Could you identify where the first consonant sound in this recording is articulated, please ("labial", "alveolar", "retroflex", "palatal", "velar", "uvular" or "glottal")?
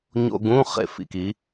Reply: palatal